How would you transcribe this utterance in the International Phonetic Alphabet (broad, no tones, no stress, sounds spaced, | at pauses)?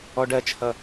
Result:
ɔ ɖ ɜ t͡ʃʰ ʌ